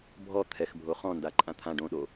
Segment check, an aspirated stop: present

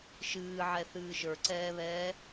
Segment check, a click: present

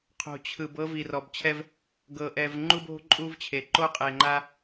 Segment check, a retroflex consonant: absent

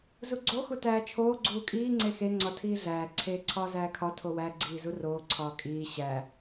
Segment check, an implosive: absent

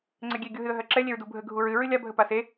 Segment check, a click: present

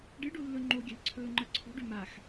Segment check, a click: present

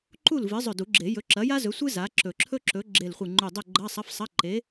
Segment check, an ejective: absent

